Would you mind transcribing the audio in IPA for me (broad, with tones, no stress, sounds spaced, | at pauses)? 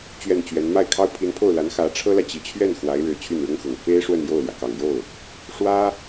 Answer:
t͡ɕ ɥ ɛ˥˩ n t͡ɕ ɥ ɛ˧˥ n m a˥˩ ɪ̯ kʰ ɑ˥ ʊ̯ pʰ i˧˥ n pʰ o˥˩ ʊ̯ l a˧˥ n x ä˧˥ ʈ͡ʂʰ ɤ˥ l ä˨ t͡ɕ i˨˩ t͡ɕʰ ɥ ɛ˥˩ n x w a˧˥ ɪ̯ ɻ ɻ̩˨˩ t͡ɕʰ y˥˩ n ɻ ʊ˥ ŋ x ʊ˨˩ ŋ f e˥ ɪ̯ ʂ w ə˥˧ n j o˥˩ ʊ̯ l j ä˩ k ɑ˨˩ ŋ j o˥˩ ʊ̯ | ʂ w ä˥